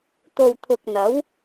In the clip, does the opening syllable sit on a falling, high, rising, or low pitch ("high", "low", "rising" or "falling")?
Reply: low